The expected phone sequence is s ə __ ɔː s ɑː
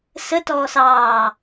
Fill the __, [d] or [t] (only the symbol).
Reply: t